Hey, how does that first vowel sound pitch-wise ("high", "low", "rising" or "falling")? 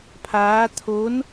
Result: rising